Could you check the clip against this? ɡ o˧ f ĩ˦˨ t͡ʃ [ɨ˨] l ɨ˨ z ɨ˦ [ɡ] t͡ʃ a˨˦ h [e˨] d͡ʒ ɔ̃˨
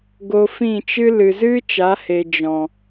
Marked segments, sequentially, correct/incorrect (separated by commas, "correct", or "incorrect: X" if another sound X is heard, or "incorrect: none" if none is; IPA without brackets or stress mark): incorrect: ɨ˦, incorrect: none, correct